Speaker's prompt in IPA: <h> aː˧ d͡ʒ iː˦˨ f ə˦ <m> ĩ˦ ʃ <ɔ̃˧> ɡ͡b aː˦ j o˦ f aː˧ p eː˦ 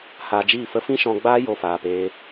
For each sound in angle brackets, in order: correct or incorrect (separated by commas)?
correct, incorrect, correct